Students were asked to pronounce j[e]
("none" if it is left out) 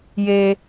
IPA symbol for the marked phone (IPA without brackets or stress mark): e